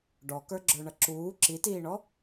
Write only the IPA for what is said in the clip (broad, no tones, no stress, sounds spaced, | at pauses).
ɖ ɔ k ə˞ ɡ͡ǁ ə˞ ɳ ʌ ǁ uː ǁ i t iː ɳ ɔ